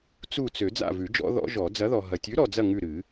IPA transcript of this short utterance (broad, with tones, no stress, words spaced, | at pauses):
t͡su˦˨t͡sø˨˩˦ d͡za̰˦˨vʉ˨˩˦ d͡ʒɔ̰˦˥ðɔ̰˦˥ʒɔ˨˩˦ d͡zɐ˨˥ðɔ˨ ɦɐ˨tʲʉ˨˥ɾɔ˨d͡zɐ˦˨ ŋʉ˦˨ɾɨ˨˩˦